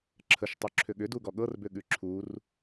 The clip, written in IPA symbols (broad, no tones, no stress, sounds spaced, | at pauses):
ǁʰ ə ʃ tˤ u ǁʰ ʏ ɠ ʏ d u ɡ ɔ ɠ ɤ r b ʏ ɠ ʉ ǁʰ u r